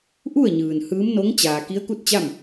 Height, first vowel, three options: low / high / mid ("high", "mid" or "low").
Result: high